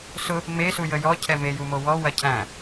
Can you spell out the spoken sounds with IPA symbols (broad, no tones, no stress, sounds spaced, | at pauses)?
s ʊ | m e s u j ə j ɔ cʰ ɛ m e j u m o w ɔ w ɐ cʰ æ̃